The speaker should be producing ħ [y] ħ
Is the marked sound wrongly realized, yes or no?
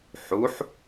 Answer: yes